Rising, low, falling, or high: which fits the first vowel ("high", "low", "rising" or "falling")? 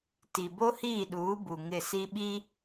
low